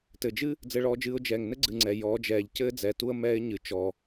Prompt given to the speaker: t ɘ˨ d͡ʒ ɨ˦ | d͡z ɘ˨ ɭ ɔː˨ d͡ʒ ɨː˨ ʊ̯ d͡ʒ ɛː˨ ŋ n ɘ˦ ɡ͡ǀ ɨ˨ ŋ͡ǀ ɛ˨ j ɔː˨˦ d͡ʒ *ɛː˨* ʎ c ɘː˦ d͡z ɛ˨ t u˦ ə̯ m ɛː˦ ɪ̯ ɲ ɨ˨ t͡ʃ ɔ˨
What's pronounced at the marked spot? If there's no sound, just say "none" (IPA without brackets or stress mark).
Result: ɛː˨